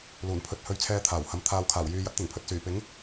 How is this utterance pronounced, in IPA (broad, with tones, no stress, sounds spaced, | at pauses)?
l uː˨˩ n pʰ ɵ˨ t̚ h ɵ˧ ɥ t͡sʰ ɛː˧ t̪ʰ aː˨˩ w h ɐ˨˧ m t̪ʰ aː˨ w kʰ aː˨˩ w j yː˨ j ɐ˨˥ t̚ t̪ ɪ˨˩ ŋ pʰ ɵ˨ t̚ s yː˨˩ p ɪ˨˥ ŋ